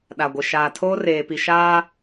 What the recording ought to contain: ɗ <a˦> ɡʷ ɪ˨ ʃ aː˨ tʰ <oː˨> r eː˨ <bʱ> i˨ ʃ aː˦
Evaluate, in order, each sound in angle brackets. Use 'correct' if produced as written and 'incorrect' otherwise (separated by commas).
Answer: incorrect, incorrect, incorrect